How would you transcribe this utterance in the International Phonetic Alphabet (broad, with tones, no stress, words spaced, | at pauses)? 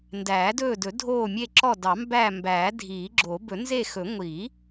ndæː˨˩˦dɵː˦˨dɵ˨˩˦ dʱoː˦˨mʲe˦˨ǁɔ˦˨ dɑ˨˩˦mbæ˦˨ mbæː˨˩˦dʱiː˨˩˦ɡ͡ǁo˨˩˦ bɵ˨˩˦nze˦˨xɵ˨˩˦ ŋʷi˨˩˦